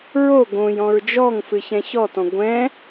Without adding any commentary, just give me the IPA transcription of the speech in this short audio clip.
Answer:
ɹo ɡõj ɔ̃ɹd͡ʒɔŋfɨ çɛ̃çɔtɔ̃ ɡʷɛ̃

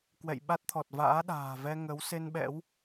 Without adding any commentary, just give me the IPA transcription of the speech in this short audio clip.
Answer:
kwɛ̰˧˨jɓa˦˥t̚t̪ʰɔ˨˩t̚ va̰ː˧˥ɗa̤ː˨˩vɛ˧ŋə˨˦w se˧nɓɛ̰˧˥w

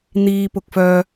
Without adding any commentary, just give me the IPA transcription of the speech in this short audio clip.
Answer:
n̪iː˨pʊ˨k̚fœː˨

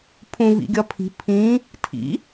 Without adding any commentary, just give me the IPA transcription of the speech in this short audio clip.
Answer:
pʰũ vḭɡʲɒpʰi̤ pʰĩ | tʰḭ

